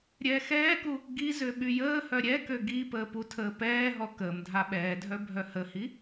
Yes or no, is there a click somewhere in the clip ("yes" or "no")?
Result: no